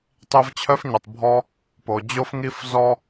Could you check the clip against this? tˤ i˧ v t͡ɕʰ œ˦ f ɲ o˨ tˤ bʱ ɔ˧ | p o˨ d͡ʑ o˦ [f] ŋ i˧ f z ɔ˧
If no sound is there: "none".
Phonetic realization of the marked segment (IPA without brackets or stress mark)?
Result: f